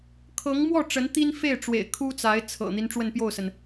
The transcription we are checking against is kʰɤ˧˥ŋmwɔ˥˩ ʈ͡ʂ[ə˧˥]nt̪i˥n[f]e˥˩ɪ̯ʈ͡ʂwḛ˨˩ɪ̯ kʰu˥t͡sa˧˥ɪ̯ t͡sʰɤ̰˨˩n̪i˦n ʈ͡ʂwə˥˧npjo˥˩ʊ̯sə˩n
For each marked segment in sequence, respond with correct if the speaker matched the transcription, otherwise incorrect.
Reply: correct, correct

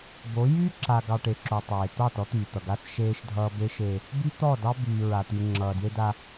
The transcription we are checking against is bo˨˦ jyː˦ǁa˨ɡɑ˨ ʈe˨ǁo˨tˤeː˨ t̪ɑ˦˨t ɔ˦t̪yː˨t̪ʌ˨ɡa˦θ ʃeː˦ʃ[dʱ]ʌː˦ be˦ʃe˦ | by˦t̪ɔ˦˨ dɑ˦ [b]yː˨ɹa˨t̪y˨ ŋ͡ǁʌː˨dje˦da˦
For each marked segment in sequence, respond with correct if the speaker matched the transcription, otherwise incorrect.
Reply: correct, correct

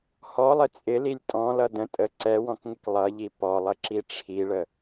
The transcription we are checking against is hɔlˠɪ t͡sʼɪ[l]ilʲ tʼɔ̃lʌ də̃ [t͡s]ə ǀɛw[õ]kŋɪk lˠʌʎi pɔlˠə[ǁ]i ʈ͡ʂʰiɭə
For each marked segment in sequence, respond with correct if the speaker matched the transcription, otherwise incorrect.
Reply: correct, incorrect, incorrect, correct

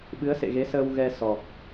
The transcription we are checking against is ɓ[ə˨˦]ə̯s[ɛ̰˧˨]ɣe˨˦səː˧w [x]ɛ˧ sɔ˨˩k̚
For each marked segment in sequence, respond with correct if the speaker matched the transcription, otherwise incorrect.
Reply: incorrect, incorrect, incorrect

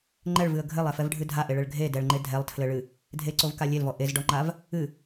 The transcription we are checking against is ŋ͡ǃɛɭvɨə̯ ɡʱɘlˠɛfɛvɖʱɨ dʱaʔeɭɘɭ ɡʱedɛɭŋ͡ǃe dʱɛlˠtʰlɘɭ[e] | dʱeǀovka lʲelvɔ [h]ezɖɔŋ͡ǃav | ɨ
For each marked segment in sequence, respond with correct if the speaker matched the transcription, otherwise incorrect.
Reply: incorrect, incorrect

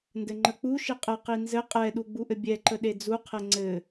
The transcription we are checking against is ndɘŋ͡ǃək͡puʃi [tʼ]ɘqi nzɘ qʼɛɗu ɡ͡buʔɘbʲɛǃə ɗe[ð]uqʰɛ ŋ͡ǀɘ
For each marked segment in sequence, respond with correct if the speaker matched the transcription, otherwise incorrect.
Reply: incorrect, incorrect

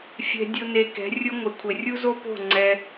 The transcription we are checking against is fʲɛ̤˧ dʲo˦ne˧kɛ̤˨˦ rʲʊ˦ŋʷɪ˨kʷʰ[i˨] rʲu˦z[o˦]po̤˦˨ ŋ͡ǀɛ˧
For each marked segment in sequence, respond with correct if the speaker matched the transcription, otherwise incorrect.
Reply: incorrect, correct

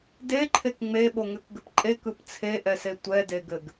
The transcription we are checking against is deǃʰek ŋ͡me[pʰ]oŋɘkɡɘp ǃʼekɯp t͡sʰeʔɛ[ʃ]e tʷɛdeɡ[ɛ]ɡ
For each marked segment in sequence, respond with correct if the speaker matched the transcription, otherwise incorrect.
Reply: incorrect, incorrect, incorrect

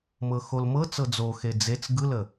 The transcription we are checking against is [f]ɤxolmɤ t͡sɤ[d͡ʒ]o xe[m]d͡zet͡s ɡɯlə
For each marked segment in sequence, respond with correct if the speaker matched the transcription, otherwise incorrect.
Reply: incorrect, incorrect, incorrect

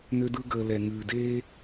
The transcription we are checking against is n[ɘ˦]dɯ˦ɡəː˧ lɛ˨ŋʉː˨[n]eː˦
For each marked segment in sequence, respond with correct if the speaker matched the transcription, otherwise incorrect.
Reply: incorrect, incorrect

